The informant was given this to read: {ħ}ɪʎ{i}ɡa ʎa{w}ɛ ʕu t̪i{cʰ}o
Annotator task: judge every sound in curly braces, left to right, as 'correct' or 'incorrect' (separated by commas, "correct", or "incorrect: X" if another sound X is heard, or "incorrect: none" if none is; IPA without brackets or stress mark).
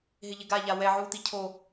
incorrect: ɦ, incorrect: ɪ, correct, correct